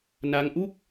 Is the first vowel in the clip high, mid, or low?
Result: low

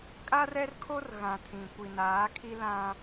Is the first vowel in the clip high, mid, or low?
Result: low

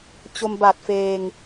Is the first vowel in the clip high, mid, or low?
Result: mid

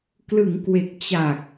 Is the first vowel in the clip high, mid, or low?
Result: high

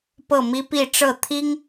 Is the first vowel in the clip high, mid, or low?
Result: mid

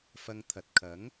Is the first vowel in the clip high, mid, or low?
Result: low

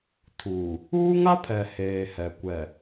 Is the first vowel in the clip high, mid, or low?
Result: high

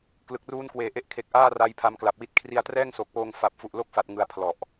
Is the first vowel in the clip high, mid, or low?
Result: high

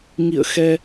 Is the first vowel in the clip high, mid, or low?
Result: high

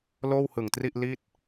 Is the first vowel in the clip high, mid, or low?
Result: mid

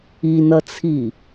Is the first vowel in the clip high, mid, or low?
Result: high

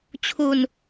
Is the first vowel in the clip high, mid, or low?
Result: high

